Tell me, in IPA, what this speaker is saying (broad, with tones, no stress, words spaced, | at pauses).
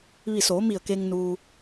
ʋi˧˩soː˩˧mi˧˩ə̯ke˧ŋ nuː˧